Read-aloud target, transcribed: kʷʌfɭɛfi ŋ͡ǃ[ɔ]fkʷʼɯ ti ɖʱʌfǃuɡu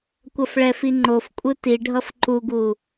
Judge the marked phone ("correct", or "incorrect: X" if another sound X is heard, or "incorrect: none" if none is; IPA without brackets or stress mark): incorrect: o